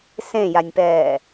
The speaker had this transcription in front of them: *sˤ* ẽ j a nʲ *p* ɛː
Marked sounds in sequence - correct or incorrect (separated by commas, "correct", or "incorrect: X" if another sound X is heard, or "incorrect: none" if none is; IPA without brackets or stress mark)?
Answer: incorrect: s, correct